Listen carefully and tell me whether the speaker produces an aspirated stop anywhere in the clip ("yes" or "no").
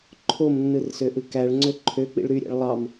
yes